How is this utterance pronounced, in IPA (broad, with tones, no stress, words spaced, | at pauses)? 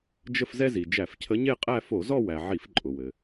d͡ʒə˥˧fzɛ˥zi˩ d͡ʒæ˧˩˧fcʰə˧˥ɲe˥˧qʼæ˥˧ fo˧˩˧zɔ˥˧wæ˩ ʕi˧˩˧fǃʼʊ˩wɘ˩